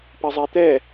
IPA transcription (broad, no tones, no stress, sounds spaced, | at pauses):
p ɘ zˤ e t̪ ɛ